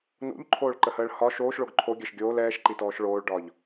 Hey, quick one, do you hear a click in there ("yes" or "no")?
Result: yes